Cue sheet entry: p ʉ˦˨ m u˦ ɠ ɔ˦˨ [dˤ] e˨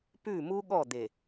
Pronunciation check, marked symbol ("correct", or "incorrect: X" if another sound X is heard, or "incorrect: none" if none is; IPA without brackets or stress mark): incorrect: d̪